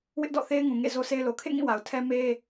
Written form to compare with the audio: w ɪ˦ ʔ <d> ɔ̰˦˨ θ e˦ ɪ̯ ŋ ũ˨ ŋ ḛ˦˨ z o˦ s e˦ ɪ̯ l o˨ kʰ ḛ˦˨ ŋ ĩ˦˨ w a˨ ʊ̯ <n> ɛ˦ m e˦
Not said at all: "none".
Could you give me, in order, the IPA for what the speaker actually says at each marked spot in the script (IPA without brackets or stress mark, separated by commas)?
d, tʰ